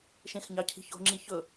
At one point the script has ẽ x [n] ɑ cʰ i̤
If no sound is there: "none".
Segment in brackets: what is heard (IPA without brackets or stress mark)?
ɲ